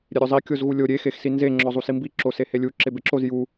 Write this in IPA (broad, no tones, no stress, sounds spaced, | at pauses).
ɾʲ e ɾʲ o zˤ i kʲ o z ɣ u lʲ o ɾʲ e x e x s i n z e ŋ͡ǁ ɔ zˤ u s i m b i ǁ o s e h e lʲ u ǁ e b e ǁ o z j u